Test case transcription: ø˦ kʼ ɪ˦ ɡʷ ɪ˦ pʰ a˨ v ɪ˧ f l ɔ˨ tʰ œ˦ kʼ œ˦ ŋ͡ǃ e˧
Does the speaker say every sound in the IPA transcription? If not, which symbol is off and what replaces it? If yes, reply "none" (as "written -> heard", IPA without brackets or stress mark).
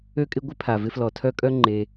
none